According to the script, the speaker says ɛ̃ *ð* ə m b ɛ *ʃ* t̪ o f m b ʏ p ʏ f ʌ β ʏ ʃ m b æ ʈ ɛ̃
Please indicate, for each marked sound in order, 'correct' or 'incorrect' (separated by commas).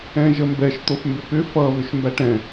incorrect, correct